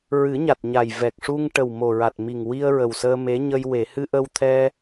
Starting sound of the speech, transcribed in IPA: ɹ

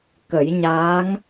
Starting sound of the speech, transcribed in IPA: k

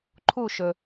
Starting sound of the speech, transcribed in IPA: ǃʰ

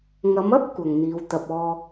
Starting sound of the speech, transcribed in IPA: ŋ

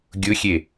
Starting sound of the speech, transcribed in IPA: ɡʲ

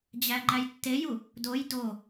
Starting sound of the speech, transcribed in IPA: d͡ʑ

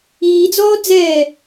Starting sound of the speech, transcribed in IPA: iː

